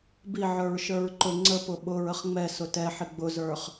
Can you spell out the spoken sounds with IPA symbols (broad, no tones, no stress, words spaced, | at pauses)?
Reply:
biʕə˞ɹʃə˞ɹ ǃʊ ŋ͡ǀəpʊ ɓʊɹəχ ŋ͡mɛsʊ tɛħɪ ɡ͡bʊzə˞χ